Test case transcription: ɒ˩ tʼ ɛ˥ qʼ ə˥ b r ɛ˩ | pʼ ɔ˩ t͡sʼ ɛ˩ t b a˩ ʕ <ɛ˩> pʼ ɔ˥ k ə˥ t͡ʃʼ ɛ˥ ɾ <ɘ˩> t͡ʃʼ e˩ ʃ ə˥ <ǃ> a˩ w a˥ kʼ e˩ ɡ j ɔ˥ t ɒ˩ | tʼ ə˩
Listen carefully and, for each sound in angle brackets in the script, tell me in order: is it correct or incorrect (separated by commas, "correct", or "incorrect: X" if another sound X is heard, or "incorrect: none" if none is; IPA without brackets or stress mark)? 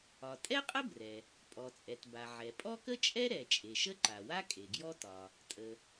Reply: correct, incorrect: ɛ˩, correct